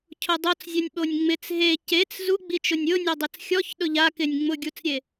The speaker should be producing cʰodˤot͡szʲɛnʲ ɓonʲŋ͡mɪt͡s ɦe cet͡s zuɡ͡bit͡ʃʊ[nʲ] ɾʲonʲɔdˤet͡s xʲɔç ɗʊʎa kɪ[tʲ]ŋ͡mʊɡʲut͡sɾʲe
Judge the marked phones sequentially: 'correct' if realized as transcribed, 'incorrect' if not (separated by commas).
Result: correct, incorrect